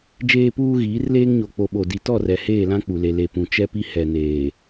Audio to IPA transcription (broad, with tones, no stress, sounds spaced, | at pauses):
d͡ʒ eː˦ p uː˦ ɣ iː˨˦ r l eː˦ ŋ ɲ o˨ k͡p o˨ ɓ o˨ d i˨ t ɔ˦˨ r ɛ˨ h eː˦˨ l ã˦ k͡p u˨ l e˨ l e˨ p ũ˨ t͡ʃ ɛ˦ p i˦ h ɛ˨ n eː˨